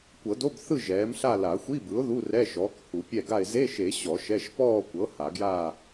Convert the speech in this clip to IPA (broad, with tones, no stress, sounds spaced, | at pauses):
kʷ ɤ˨˩˦ d o˧˥˧ b θ ɯ˥˨ ʒ ɛː˩˥ m ɬ a˥˨ l a˨˩˦ xʷ i˧˥˧ b ɯ˩˥ ʊ̯ ð u˧˥˧ r ɛ˧˥˧ ʃ ɔː˩˥ k h u˨˩˦ pʲ ɛ˥˨ ɡ a˥˨ ɪ̯ z e˧˥˧ ʃ e˨˩˦ ɕ ɔ˨˩˦ ʃ ɛ˧˥˧ ʃ p ɔː˥˨ kʷ ɤ˩˥ h a˨˩˦ ɡ j aː˥˨